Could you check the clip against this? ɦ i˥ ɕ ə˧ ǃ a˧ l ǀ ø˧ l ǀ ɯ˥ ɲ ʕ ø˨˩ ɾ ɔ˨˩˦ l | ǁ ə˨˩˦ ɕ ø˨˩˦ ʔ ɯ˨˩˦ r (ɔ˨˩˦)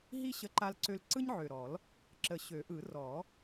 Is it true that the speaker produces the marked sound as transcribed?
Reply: yes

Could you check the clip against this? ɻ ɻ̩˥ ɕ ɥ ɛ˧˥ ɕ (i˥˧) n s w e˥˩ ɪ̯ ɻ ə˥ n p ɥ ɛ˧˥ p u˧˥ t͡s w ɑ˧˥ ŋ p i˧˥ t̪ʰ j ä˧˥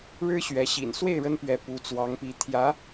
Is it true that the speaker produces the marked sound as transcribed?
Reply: no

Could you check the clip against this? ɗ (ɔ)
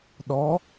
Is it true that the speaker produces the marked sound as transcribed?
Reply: yes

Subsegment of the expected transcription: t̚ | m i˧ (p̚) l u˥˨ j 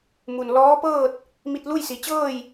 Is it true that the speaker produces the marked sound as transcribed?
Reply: no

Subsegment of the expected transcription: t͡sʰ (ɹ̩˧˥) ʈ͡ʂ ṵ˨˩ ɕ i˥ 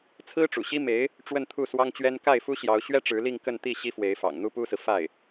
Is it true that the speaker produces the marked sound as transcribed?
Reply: no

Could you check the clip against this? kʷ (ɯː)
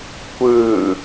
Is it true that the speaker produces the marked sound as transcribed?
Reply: yes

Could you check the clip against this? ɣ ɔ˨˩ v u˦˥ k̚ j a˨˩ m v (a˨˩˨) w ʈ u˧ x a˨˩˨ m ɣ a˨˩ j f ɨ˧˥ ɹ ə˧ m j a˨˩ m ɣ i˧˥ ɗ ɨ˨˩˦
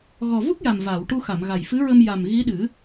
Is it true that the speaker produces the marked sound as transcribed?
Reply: yes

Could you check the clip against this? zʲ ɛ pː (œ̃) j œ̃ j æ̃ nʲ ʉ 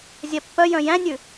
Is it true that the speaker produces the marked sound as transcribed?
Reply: no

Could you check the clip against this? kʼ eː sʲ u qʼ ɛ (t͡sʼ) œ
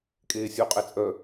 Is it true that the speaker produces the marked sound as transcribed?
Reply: yes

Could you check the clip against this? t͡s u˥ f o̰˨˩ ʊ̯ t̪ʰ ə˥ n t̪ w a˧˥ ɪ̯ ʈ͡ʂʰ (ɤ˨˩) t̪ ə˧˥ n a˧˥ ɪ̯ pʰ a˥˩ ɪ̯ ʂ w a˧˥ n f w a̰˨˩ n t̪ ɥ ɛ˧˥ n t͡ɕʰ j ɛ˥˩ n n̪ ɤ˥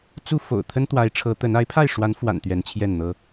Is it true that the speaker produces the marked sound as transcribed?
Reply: no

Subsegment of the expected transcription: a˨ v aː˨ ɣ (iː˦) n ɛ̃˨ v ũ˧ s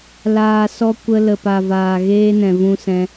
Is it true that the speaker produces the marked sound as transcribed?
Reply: no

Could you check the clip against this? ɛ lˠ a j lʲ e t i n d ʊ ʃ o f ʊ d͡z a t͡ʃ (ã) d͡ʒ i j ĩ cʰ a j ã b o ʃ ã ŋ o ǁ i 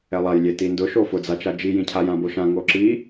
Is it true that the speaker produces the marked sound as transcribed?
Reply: no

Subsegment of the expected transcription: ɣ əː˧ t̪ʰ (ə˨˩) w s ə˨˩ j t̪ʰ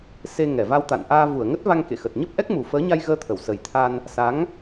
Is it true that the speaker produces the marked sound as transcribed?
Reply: no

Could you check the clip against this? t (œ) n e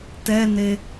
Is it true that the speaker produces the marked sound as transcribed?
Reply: no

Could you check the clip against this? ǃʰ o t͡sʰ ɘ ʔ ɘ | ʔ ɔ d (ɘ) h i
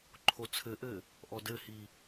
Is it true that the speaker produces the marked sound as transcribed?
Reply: yes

